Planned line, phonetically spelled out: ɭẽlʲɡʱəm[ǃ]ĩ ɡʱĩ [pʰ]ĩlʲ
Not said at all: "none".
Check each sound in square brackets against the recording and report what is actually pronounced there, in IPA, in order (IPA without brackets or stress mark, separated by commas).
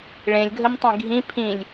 tˤ, pʰ